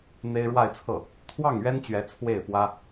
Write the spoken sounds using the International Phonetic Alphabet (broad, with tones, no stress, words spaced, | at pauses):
n̪e˥ɪ̯ ɻwa˥˧ɪ̯t͡sʰɤ˥˩ | t̪ʰwɑ˥˩ŋɥɛ˥n t͡ɕɥɛ˧˥ t͡sʰwe˥˩ɪ̯fwä˥